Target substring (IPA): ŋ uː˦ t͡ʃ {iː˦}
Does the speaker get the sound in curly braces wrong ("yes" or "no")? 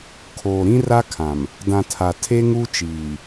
yes